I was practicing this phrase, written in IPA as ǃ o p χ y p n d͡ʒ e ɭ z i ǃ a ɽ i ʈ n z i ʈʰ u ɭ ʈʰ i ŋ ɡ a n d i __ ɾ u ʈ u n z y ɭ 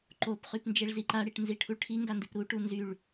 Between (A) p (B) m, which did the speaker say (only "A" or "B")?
A